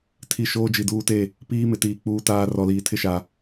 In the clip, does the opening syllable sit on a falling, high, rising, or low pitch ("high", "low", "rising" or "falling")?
low